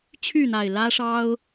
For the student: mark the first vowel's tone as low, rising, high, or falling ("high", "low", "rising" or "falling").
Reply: falling